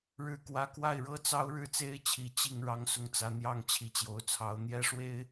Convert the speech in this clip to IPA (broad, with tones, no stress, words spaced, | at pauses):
ɻɻ̩˥˩kwä˥ kwa˥˩ɪ̯ɻɤ˥t͡sɑ˥ʊ̯ ɻɻ̩˥˩t͡se˥ɪ̯t͡ɕʰi˨˩ t͡ɕi˥˩ŋ ɻɑ˥ŋsʊ˥˩ŋt͡sä˧˥ n̪jɑ˥˩ŋ t͡ɕʰi˧˥t͡ɕjo˧˥ʊ̯t͡sʰɑ˧˥ʊ̯ n̪jɛ˥ʂwe˥ɪ̯